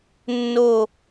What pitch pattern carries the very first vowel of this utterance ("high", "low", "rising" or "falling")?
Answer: falling